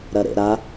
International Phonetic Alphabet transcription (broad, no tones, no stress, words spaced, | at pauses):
ɾɐɾḛɾa